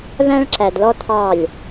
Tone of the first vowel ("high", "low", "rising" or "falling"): high